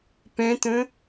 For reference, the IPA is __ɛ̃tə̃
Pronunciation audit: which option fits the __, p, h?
p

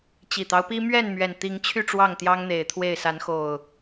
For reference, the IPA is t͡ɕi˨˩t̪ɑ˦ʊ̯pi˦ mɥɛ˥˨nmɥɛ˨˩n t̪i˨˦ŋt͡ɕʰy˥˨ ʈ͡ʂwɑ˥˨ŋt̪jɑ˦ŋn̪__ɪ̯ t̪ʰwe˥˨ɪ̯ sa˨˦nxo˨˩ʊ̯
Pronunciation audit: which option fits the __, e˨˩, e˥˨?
e˨˩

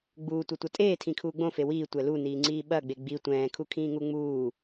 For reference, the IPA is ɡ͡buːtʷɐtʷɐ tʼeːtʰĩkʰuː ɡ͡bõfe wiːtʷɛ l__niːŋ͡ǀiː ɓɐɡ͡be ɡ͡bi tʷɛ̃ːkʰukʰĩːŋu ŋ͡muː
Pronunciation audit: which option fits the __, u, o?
u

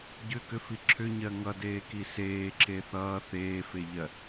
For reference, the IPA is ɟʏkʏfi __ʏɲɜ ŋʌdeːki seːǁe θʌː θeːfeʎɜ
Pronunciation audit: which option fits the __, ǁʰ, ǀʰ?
ǁʰ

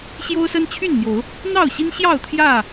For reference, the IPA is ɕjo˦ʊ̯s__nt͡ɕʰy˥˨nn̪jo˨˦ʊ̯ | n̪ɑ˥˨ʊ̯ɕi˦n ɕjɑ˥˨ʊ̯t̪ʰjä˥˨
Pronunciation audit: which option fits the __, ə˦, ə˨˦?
ə˦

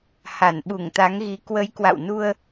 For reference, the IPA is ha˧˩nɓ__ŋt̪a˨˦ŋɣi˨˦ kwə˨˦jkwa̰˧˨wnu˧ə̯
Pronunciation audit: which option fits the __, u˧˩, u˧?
u˧˩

